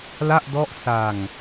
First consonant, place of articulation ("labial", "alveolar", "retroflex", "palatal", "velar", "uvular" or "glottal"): alveolar